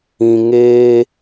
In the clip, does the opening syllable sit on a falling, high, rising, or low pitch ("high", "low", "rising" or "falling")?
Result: low